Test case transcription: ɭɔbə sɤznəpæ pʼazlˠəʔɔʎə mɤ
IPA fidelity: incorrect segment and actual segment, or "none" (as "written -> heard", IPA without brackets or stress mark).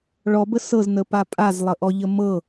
æ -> a